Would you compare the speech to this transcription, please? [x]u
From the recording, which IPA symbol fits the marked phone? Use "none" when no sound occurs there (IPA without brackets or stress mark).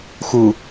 x